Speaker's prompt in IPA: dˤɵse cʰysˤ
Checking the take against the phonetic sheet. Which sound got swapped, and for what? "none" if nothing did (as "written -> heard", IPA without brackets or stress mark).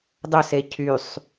none